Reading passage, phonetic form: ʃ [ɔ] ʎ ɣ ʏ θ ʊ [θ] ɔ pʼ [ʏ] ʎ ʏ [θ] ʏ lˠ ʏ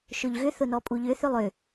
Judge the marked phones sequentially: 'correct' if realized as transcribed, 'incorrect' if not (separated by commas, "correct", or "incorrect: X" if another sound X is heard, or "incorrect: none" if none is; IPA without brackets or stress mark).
incorrect: ʊ, incorrect: n, incorrect: u, correct